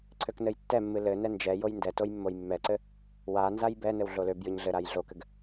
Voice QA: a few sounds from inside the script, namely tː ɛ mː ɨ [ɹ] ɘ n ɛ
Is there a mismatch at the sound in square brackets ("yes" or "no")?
yes